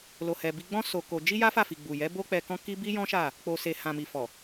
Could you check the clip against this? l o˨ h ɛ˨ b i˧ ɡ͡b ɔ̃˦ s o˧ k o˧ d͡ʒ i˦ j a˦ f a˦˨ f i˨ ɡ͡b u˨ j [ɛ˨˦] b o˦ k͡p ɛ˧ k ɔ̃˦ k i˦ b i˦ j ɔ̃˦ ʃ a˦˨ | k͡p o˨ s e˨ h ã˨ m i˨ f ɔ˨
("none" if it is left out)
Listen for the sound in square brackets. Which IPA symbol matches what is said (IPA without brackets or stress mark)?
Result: ɛ˨˦